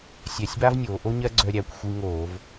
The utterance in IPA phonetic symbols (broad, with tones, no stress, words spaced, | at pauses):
sʲɛ˧˩˧sʲba˥vnʲoː˩˧ ʔo˥ɲɜ˥ ɡ͡ǀœ˧ɾʲæ˩˧kʷ xʷi˧ŋoː˧˩˧v